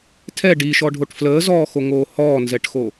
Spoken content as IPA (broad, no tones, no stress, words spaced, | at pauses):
tʰɛ ɖiʃɔɖʱoʈ fləːzɔːxoŋoː hɔːnzɛʈxo